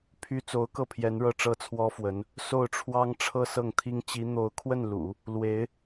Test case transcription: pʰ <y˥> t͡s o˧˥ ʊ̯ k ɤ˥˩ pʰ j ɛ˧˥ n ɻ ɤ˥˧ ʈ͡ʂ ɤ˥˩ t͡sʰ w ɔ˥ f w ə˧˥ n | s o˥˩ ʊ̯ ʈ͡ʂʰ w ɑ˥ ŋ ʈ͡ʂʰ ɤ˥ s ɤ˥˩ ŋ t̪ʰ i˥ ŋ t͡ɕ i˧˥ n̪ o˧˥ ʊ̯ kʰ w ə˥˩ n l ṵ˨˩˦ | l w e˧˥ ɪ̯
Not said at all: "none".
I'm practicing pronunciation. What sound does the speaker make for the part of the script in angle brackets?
y˥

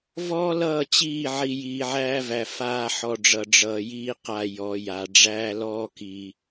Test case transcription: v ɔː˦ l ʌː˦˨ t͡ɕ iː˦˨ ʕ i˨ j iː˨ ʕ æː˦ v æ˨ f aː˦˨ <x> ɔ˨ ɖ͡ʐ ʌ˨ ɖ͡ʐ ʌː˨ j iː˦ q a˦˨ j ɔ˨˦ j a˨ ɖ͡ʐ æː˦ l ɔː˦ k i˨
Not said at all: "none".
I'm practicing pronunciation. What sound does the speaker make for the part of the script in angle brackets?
ħ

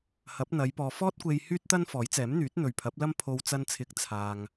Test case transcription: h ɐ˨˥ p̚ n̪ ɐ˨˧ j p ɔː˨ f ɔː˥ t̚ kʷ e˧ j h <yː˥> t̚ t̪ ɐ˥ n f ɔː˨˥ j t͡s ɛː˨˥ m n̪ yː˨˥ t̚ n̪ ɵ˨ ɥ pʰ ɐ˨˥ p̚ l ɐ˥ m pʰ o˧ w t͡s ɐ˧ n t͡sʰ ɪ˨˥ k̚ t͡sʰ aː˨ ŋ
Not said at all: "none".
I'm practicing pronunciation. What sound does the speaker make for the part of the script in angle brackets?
yː˥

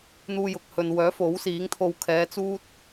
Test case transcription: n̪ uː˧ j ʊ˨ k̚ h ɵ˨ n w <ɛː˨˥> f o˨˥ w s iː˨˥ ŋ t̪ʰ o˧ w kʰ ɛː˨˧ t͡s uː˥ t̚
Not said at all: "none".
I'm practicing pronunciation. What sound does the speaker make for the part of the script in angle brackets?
œː˨˥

